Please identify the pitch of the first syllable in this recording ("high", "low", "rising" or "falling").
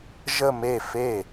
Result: falling